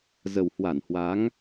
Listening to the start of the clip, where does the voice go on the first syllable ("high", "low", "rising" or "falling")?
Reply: low